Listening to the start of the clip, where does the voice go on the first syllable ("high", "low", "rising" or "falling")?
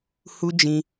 high